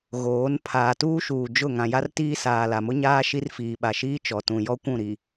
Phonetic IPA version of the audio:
ɣ oː˨˦ n pʰ aː˨ t uː˦ ʃ uː˨ d͡ʒ ʊ˦˨ ŋ ã˨ j a˦ r t iː˦ s aː˨ l a˨ m ʊ˦ ɲ aː˦ ʃ i˦ r f iː˨ ɓ a˨ ʃ iː˦ t͡ʃ ɔ˨ t ũ˨ j ɔ˦ kʷ ũ˦˨ ɾ i˨

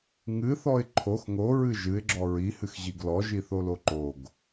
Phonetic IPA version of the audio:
ŋ ɨ θ ɔ ɪ̯ ǃʰ o x ŋ o ɹ ɨ ʒ ɨ ɪ̯ ɡ͡ǁ ɔ ɹ i h ɨ x ʑ i ɡ l ɔ ʒ i θ o l o ǃ o ɡ

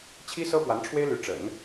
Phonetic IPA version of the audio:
t͡ɕʰ i˥ s ɤ˥ p w a˧˥ n ʈ͡ʂʰ w e˥ ɪ̯ l y˧˥ ʈ͡ʂ ə̰˨˩˦ n

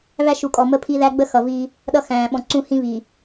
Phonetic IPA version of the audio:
β æ˦ ʃ u˨ kʼ ɔ˨ m ə˦ pʰ i˦ ð æ˦ ɡ͡b ə˦ x ʌ˨ v i˦ | ɗ ʌ˦ x æ̃ː˨ ɓ ɔ̃˨ ǀ ũ˦ h ĩ˦ β i˨

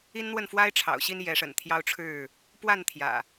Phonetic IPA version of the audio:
i˦ n n̪ w ə˥˨ n f w a˦ ɪ̯ ʈ͡ʂʰ ɑ̰˨˩ ʊ̯ ɕ i˦ n j ɛ˨˦ ʂ ə̰˨˩ n t̪ʰ j ɑ˦ ʊ̯ ʈ͡ʂʰ ɻ̩˥˨ | p w a˥˨ n t̪ʰ j ä̰˨˩

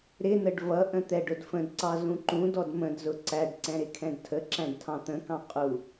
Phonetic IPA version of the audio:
ɾ ɪ n ə ɖ v ʌ ʔ ə̃ t̪ ɛ ɖ ʊ d f ə̃ d ǀ ɑ z ũ ǃ ũ d ɔ d m ə̃ d z ʊ ǀ æ ɖ ǀ ɛ̃ ɾ ɪ kʰ ɛ̃ d tʰ ə ǁ æ̃ ɖ tʰ ɑ̃ t̪ ə̃ k ɑ̃ qʼ u

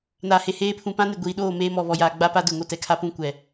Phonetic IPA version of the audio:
n aː˨ h e˨ h eː˦ pʰ ũ˨ p ã˦ n ɪ˨ ɡʷ iː˨ ɗ oː˦˨ m eː˦ m ɔ˨ β ɔ˨ j aː˨ ɡ͡b a˦ p a˦ d ʊ˨ ŋ o˦ t ɛ˨ kʰ a˦ p ũ˦ kʷ ɛ˨

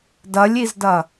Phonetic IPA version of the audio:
d ɐ lʲ i z d ɐ

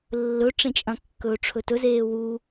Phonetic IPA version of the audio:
lː ɵ ʈ͡ʂ ẽ t͡ʃʼ ɐ̃ kː ɵː ʈ͡ʂʰ ɵ t ɵ z eː w u

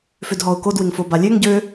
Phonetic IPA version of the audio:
f ø d ɦ ɔ ʊ̯ k o d w ɪ ŋ f o b a lʲ ø ŋ ɟ ø

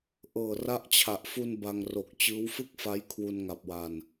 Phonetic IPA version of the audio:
ʔ ɤː˨˩ r a˦˥ ʔ t͡ɕʰ a˨˩ ʔ f u˧ n b a˧ ŋ r o˨˩ k̚ t͡ɕ ɯː˦˥ w f ɯ˥˩ k̚ f a˦˥ j kʰ w u˧ n ŋ a˨˩ p̚ w a˨˩ n

